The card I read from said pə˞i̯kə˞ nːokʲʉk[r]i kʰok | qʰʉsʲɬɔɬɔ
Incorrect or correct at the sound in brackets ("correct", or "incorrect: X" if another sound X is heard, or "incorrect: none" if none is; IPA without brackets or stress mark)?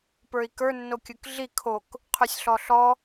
incorrect: ɮ